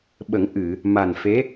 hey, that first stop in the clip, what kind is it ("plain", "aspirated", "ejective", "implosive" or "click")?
implosive